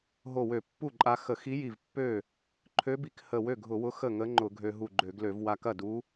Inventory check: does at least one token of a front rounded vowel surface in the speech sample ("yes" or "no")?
yes